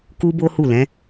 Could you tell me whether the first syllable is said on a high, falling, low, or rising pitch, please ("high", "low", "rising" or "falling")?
high